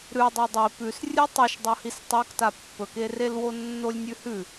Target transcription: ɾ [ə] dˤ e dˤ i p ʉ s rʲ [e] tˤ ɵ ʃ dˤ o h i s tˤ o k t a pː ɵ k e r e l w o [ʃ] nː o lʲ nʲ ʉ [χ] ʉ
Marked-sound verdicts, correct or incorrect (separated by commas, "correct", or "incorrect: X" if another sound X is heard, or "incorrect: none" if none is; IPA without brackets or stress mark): incorrect: ʉ, incorrect: ɨ, incorrect: none, incorrect: h